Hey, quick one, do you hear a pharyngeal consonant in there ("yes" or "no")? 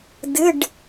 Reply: no